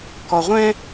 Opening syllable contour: low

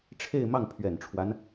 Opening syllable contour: falling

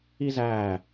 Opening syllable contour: high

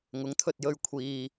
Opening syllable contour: rising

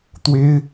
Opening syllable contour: high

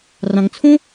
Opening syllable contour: low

